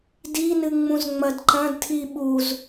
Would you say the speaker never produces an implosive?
no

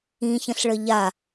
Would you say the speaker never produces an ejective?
yes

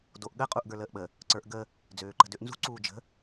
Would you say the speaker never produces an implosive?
no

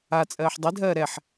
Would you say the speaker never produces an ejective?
no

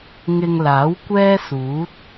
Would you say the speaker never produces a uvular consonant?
yes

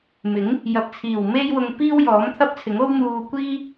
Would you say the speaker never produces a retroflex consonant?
yes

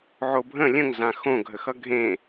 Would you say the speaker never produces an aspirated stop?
yes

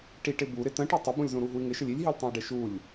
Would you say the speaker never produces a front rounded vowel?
yes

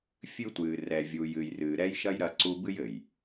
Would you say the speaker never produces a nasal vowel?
yes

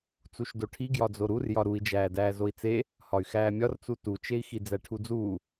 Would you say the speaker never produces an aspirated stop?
no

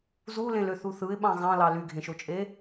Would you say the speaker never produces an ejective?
no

